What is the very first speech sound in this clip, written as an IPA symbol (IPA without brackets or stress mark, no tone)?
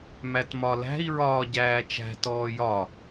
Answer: m